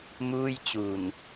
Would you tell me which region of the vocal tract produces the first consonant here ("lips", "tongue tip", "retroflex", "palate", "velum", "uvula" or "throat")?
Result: lips